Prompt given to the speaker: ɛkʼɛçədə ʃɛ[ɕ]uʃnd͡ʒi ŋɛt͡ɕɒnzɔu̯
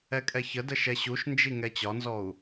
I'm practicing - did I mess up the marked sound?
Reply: no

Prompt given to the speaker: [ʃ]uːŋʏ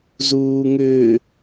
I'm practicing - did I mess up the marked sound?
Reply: yes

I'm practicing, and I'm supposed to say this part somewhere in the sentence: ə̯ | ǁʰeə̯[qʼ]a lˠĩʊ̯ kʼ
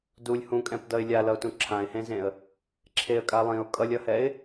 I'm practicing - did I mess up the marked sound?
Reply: yes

